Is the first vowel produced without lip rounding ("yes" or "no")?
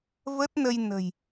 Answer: yes